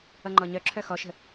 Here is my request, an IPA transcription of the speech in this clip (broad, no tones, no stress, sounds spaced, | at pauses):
ʌ ŋ͡ǃ ɔ ɲ œ ǁʰ œ x ɔ ʃ ə̤